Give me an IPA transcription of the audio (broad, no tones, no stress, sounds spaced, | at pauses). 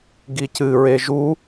ɡ i c ɨ ɹ e ʒ u